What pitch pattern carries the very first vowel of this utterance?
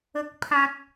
low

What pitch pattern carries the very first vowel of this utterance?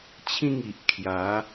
falling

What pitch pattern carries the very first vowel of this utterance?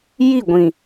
falling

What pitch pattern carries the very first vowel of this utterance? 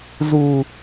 low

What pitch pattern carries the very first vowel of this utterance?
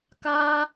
high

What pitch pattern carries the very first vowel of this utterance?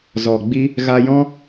low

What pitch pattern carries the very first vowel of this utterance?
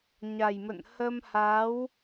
low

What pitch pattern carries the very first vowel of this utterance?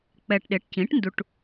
low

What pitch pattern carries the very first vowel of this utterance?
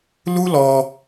high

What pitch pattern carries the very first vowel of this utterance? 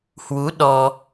rising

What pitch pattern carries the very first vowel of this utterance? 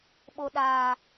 low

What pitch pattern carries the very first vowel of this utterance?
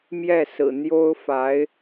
falling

